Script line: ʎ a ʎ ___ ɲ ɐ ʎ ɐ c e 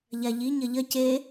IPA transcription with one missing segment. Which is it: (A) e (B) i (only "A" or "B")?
B